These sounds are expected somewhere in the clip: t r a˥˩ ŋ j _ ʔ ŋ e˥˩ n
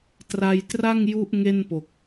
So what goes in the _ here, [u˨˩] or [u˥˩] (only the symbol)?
u˥˩